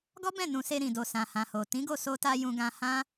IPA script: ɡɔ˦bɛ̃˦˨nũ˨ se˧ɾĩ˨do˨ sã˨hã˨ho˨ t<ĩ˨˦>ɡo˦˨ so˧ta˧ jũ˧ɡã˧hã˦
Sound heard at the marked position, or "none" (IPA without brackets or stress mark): ĩ˨˦